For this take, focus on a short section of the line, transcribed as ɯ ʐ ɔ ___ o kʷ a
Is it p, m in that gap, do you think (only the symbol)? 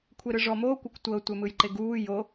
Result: m